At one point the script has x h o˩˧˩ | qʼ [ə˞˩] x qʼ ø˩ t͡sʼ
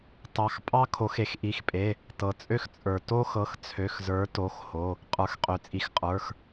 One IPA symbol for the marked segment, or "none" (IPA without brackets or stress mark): ə˞˩